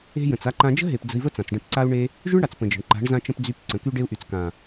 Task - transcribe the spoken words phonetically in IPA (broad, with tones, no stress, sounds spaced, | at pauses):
e̤˧ j ə̃˨ t͡s a˦ ǃ ã˦ d͡ʒ ə̤˦ ɦ e˨ p d͡z ə̤˧ i̯ v ə˦ t͡s ã˨ t͡s ɖ ẽ˧ p ǀ a˦ u̯ ɳ e˦ | ʒ y˦ ɳ ɽ a˨ t͡s p ə̃˨ d͡ʒ ə̤˨ ɳ ǃ a̤˨˦ ɳ z ã˧ t͡ʃ ə̃˧ p d͡z y˨˦ p ǀ ə̃˨ k y˧ ɖ e˧ u̯ ʔ y˨ t͡s k ã˨